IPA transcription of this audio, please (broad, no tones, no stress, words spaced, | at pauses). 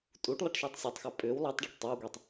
tʼuʈ lˠaʈʃəːtˤsʲɵtˤxæ pʼʏːw lˠætˤɖaʈ tˤawɡʷetˤ